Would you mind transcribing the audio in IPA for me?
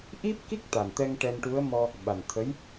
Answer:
ʔ i˦˥ p̚ k i˦˥ k̚ t̪ a˨˩ n t̪ ɛ˧ ŋ ʈ ɛ˧ n ʈ u˧˥ ə̯ m ɔ˧ | ɓ a˨˩ n t̪ʰ ə˧˥ j

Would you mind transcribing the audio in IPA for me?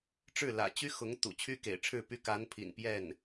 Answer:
ʈ͡ʂ ɻ̩˥˩ l ä̰˨˩ t͡ɕ y˥ x ʊ˧˥ ŋ t̪ ṵ˨˩ t͡ɕʰ y˥ k ḛ˨˩ ɪ̯ ʈ͡ʂʰ ɻ̩˥˩ p y˥ k a˧˥ n pʰ ḭ˨˩ n p j ɛ˥˩ n

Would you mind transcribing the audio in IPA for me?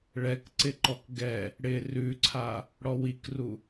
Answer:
ɭ ɛ k ǀ ɪ ǃ ɔ k ɡ ɛ | ɽ ɪ r ʉ ǀʰ a | ɽ ɔ w i k r u

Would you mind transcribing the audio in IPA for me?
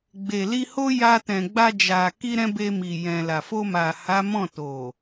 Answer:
ɡ͡b e˨ l i˧ h o˦ j a˧ t ɛ̃˨ ɡ͡b a˧ d͡ʒ a˨ k i˧ ɾ ɛ̃˧ b e˧ m i˨ j ɛ̃˨ l a˨ f o˧ m a˨ h a˨˦ m ɔ̃˦˨ t o˨

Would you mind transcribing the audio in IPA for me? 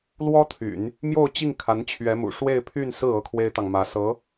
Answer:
l w ɔ˥ t̪ʰ y̰˨˩˦ n | m j o˥˧ ʊ̯ t͡ɕ i˥˩ ŋ kʰ a˧˥ n t͡ɕʰ ɥ ɛ˧˥ m ṵ˨˩ ʂ w e˥˧ ɪ̯ pʰ y˥˧ n s ɹ̩˥˩ ɤ˥ kʰ w e˥ ɪ̯ t̪ ɑ˨ ŋ m ä˧˥ s ɤ˧˥

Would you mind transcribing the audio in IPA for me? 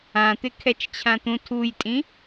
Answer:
ã t̪ ɪ kʰ ɛ t͡ʃ t͡ɕʰ ã t̪ ũ tʰ u j tʼ ĩ

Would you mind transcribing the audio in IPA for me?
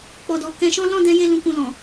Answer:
k͡p ɔ˨ d ɔ˨ k ɛ̃˧ ʃ ɔ̃˦ l ɔ̃˦˨ d ɛ̃˧ j e˧ l ũ˨ k ũ˨ l ɔ̃˨

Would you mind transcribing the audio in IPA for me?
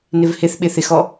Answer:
n ɪ v h ɪ θ ɓ ɪ θ ɪ x ɔ

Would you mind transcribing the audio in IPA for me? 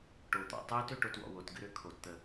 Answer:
ʈ o t̪ ɔ̰ tˤ ɨː t ø ʈ o t w ɔ̰ w o t ɡ ɨ ɾ ø kʰ o t t̪ əː

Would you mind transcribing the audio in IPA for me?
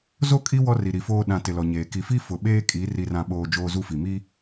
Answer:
z o˦˨ kʼ i˦ w ɔ˦ r i˨ ɾ i˨ f oː˦ ɗ ã˨ t ɪ˨ l ɔ˨ ɲ eː˨ k i˨ f i˦ f ʊ˨ ɓ eː˦ kʼ i˨˦ r i˨ r ã˨ ɓ oː˨ d͡ʒ oː˦ z u˦ f i˨ m i˦

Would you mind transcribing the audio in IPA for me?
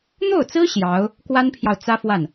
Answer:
n̪ o˥˩ ʊ̯ t͡s ɹ̩˥ ɕ j ɑ˧˥ ʊ̯ | k w a˥ n pʰ j ɑ˨ ʊ̯ t͡s ä˥ f w a˥˩ n

